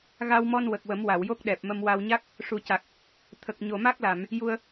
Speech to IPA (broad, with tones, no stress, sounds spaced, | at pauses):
ɣ a˧ w m ɔ˧ n w ə˨˩ k̚ w ə˨˩˦ m w a˨˩˨ w j o˦˥ k̚ ɗ ɛ˨˩ p̚ m ə˧ m w a˧ w ɲ a˦˥ k̚ | ʂ u˨˩ c a˨˩ k̚ | t̪ʰ ə˨˩ k̚ ɲ o˨˩ m a˦˥ k̚ l a˨˩˨ m | j u˧ ə̯